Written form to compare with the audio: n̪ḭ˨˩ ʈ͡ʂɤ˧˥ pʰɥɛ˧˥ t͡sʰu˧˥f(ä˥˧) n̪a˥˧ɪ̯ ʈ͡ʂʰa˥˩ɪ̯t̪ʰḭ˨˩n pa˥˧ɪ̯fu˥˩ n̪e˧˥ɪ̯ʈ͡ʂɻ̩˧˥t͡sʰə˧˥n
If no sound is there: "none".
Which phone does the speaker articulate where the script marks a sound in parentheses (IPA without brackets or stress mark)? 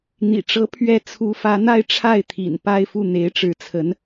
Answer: ä˧˥